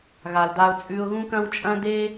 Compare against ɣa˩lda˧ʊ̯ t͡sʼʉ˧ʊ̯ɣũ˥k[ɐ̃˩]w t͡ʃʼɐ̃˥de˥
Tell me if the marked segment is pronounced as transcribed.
no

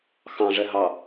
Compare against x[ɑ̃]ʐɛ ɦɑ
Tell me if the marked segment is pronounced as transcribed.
yes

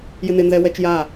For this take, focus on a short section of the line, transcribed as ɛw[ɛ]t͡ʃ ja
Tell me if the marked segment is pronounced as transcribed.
yes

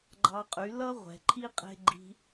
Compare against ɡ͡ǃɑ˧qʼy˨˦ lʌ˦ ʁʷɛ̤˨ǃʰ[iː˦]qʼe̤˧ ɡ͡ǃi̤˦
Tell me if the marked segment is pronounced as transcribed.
no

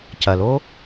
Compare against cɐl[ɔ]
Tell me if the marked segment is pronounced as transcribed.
no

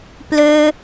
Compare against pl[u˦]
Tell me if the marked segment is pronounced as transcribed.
no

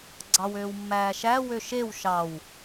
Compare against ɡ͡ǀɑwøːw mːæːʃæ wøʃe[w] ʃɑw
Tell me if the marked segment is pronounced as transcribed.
yes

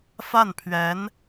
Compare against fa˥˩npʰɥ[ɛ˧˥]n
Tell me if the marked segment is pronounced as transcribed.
yes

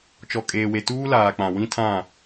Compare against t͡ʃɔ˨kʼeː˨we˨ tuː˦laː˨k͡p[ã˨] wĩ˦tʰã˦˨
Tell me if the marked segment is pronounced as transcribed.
yes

